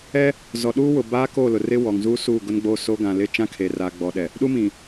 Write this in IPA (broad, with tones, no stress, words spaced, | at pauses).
ɛ˦ | zɔ˨ɗuː˦wʊ˨ baː˦ko˦˨lʊ˨rɪ˦ wɔ˨ŋzuː˦suː˦˨ ɡʊ˦nɡ͡bo˦˨so˦ ɡã˨lɪ˦ t͡ʃã˦kʰeː˨ra˨ ɡ͡bɔ˨ɗɛ˨ | ɗu˦mĩ˨